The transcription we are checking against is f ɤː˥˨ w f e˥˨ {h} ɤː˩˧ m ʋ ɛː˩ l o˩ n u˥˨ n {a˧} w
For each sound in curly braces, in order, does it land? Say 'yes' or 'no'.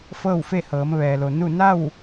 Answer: yes, no

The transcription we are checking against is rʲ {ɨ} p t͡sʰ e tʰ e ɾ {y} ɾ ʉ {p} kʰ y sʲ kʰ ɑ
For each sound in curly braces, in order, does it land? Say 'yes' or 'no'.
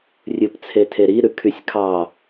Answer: yes, no, no

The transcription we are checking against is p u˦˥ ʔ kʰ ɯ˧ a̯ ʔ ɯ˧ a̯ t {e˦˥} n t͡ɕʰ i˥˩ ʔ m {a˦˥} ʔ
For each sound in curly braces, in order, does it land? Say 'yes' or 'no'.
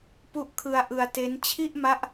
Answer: yes, yes

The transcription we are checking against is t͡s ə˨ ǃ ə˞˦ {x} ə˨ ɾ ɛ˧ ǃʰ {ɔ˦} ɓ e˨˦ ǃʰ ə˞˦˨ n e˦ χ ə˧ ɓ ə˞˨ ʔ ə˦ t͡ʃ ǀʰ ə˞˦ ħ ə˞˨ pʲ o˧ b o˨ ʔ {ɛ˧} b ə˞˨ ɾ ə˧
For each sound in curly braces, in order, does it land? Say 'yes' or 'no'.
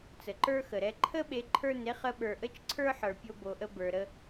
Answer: yes, no, no

